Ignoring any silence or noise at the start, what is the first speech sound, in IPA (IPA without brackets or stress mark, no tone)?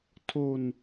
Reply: tʰ